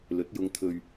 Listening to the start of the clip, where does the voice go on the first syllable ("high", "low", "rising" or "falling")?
rising